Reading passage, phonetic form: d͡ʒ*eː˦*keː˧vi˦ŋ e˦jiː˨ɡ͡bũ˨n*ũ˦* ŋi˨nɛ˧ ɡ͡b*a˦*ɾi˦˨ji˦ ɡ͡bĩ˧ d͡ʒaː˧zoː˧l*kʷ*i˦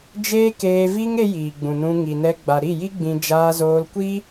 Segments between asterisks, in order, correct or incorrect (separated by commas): correct, incorrect, incorrect, correct